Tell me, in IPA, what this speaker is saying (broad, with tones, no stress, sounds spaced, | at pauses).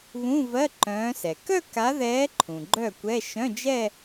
β ũ˧˥˧ v ɜ˧˥˧ ǃ œ̃ː˨˦ s ɛ˩ k œ˥˧ k a˨˦ ð ɛː˨˦ ǃʰ ũ˩ ɡ͡ǃ œ˥˩ kʷ ɛ˧˥˧ ʃ œ̃˧˥˧ d͡ʒ ɛ˥˧